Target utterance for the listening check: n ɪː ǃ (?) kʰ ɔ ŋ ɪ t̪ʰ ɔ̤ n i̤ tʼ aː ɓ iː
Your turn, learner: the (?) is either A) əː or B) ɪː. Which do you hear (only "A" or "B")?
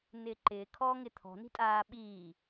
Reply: B